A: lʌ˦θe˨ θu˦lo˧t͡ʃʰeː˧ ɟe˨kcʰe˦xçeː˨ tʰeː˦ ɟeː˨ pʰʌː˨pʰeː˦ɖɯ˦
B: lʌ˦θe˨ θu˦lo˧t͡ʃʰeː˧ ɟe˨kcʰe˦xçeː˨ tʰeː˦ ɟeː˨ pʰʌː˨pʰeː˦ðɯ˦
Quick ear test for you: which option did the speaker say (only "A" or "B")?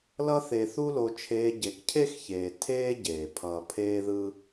B